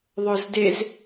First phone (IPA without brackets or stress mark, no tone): ðˤ